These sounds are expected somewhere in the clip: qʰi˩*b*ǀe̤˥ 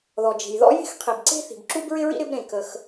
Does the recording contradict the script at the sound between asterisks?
no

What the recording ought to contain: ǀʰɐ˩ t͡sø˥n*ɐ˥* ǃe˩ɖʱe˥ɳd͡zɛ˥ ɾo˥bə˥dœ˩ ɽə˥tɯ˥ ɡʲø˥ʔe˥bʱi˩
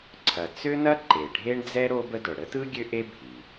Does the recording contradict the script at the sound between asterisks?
no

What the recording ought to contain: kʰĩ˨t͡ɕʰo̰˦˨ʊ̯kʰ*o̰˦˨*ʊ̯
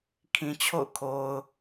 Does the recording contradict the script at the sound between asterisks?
yes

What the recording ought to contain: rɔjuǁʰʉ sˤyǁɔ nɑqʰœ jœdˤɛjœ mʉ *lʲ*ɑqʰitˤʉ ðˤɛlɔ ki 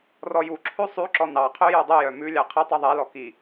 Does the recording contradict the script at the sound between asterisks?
no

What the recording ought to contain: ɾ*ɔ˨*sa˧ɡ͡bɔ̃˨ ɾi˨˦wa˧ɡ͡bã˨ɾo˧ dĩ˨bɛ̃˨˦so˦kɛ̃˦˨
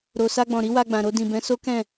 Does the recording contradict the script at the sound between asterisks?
yes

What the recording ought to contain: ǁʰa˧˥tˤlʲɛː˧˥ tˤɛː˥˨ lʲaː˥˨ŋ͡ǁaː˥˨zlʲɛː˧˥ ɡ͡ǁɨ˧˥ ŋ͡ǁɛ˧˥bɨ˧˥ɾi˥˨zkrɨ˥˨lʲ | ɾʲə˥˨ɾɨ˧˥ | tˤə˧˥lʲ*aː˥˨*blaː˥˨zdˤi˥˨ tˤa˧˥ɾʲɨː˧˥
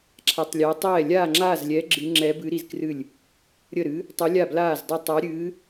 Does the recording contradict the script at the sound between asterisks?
yes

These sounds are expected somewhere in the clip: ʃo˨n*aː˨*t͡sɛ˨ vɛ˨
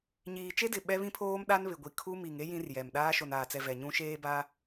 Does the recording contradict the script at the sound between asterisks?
no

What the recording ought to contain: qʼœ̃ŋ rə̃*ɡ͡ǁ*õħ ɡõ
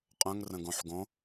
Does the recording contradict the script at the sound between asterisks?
yes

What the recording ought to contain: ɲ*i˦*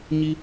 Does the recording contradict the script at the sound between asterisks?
no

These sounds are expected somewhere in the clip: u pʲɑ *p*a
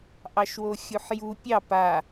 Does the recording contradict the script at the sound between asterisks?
no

